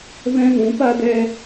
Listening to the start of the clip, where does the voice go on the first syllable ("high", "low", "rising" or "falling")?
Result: high